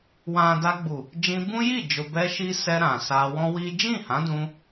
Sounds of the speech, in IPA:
w ã˨ d a˧ ɡ͡b u˨ | d͡ʒ ĩ˧ b ũ˦ j i˦˨ d͡ʒ o˨ b ɛ˧ ʃ i˦ s ɛ˧ ɾ ã˨ s a˧ w ɔ̃˦ w i˦ d͡ʒ ĩ˦˨ h ã˨˦ d ũ˧

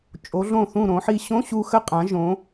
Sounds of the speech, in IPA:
t͡ʃʼ o˩˧ ɮ õ˧˩ θ ũ˧˩ ɾ õ˩˧ ħ i˧ ɕ õ˧˥˧ ɕ u˧ x ə˧˥˧ qʼ ã˩˧ ʒ õ˩˧

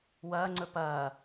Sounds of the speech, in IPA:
w ɐː ŋ͡ǀ ɵ p ɐː

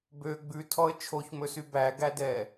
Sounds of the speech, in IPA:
b ø ɡ͡b ʉ tʰ ɔ ə̯ t͡ʃʰ o ç m ɵ s y b æ ɡ æ d ɛː

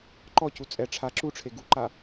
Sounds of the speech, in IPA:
ǃ ɔ c u t͡sʼ ɛ ʈ͡ʂʰ a ǁ u ʈ͡ʂʰ e ɡ u ǃ a

